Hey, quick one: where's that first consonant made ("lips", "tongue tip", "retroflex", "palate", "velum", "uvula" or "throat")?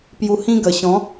lips